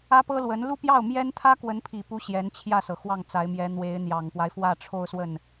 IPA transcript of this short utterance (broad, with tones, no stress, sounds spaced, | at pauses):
ä˥ p ɤ˥ l w ə˧˥ n l u˥˧ p j ɑ˥˩ ʊ̯ m j ɛ˥ n t̪ʰ ä˥ k w ə˧˥ n pʰ i˨˩ p u˧˥ ɕ j ɛ˧˥ n t͡ɕʰ j ä˥˩ s ɤ˩ x w ɑ˥˩ ŋ t͡s a˧˥ ɪ̯ m j ɛ˧˥ n̪ w e˧˥ ɪ̯ n̪ j ɑ˨˩ ŋ p w a˦ ɪ̯ f w ä˥˧ ʈ͡ʂʰ o˥˧ ʊ̯ s w ə˥˩ n